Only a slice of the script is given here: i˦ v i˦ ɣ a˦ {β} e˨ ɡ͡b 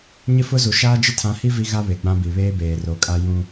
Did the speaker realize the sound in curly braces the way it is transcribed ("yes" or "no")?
yes